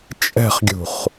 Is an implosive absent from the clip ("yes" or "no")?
yes